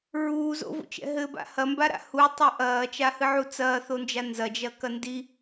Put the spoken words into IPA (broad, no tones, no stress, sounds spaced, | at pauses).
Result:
ɹ uː z o̰ v o̰ t͡ʃ ɛ̰ ɦ ɘ b a̰ h ɐ m b a ɾ a̰ h u tˤ o ʔ ɐː t͡ʃ a h ɨ ʕ u t͡s ɐː θ o n d͡ʒ a n z ɐ d͡ʒ ɐ k ɐ n d i